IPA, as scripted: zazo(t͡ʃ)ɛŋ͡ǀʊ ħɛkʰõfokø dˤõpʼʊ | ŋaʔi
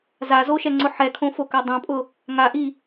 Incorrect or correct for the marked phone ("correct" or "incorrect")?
incorrect